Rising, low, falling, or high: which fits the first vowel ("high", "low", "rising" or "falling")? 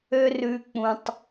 high